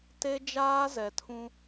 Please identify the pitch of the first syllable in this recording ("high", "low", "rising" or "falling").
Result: high